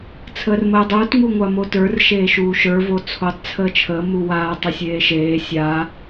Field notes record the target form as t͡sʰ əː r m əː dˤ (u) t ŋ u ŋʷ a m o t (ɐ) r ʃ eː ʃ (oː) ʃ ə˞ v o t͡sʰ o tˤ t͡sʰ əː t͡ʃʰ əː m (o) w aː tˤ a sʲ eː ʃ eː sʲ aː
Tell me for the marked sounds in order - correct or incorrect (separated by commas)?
incorrect, incorrect, incorrect, incorrect